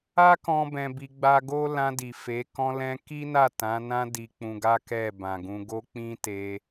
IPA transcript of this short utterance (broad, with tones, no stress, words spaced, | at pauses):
a˦kɔ̃˧ bɛ̃˧bi˧ɡ͡ba˦ ɡo˦ lã˧di˨ fe˨˦ kɔ̃˧lɛ̃˧ ki˦na˦˨ tã˨˦nã˦ di˧k͡pũ˧ɡa˦kɛ˦˨ bã˨ɡũ˧ɡo˦ k͡pĩ˦te˧